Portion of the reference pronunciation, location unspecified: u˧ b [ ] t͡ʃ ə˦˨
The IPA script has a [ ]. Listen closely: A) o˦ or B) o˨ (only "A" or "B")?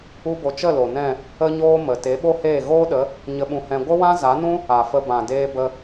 B